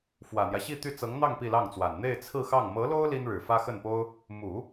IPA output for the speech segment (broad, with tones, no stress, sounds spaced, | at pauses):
f w ä˨˩ n̪ j ä˦ ɕ i˥˧ t̪ y˥˩ t͡s ɤ˧˥ ŋ n̪ ɑ˥˧ ŋ p i˥˧ l ɑ˥˩ ŋ t͡s w a˨˩ n n̪ e˥˧ ɪ̯ t͡sʰ ɹ̩˥˧ x ɑ˥˩ ŋ m ɤ˧˥ l o˥ ʊ̯ l i˥ n ɻ ɻ̩˨˩ f ä˥ x ə˥˩ n p o˥ ʊ̯ | m u˨˩˦